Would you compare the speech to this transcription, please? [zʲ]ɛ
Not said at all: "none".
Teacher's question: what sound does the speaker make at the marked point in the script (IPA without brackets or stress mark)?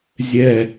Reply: zʲ